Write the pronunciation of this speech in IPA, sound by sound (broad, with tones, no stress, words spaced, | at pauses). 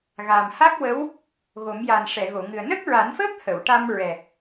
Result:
ɣa˨˩mha˦˥k̚wə˧˥w | ɣo˨˩˦mja˨˩nʂɛ˨˩˨ ɣo˨˩˨ŋɨ˨˩ə̯ nə˦˥k̚ɹa˨˩˦nfəː˦˥k̚ hə˨˩˨wʈa˧mɹɛ˨˩